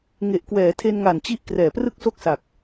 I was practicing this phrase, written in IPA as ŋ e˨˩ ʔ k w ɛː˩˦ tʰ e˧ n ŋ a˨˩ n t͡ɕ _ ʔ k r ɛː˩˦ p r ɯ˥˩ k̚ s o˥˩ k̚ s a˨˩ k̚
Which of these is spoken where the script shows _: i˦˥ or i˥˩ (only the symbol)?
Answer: i˦˥